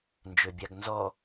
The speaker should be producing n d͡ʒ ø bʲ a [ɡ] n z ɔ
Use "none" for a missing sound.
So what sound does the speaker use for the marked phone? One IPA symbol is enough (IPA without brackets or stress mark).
ɡ